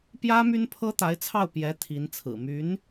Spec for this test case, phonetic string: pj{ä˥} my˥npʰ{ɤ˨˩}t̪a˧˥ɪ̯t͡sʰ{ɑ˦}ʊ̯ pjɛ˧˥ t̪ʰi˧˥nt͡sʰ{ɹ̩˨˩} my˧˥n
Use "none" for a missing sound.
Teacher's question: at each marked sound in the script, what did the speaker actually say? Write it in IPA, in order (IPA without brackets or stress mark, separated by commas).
ä˥, ɤ˥, ɑ˥˩, ɹ̩˨˩